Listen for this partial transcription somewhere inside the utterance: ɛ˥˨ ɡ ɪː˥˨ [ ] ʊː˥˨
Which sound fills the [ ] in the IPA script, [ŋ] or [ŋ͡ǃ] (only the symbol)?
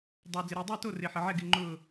ŋ͡ǃ